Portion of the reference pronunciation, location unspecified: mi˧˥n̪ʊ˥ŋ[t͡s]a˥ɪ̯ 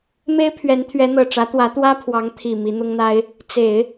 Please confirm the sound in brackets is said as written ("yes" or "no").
no